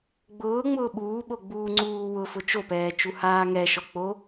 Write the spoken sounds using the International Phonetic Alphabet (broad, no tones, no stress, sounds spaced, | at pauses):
ɡ͡b ʊː ŋ͡m ʊː ɓ uː ɓ o ɡ͡b uː ŋ͡ǀ uː w ʊ f ʊ t͡ʃ o p ɛː t͡ʃ u h aː ŋ ɛ ʃ ɔ k͡p o